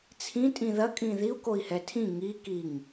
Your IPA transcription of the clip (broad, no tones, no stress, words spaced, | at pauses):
t͡sʰĩ tʼĩðɐ kʼĩðiu̯ koi̯hɛtʰĩ ŋi kiŋ